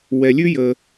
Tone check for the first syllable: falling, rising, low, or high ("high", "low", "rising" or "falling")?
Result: low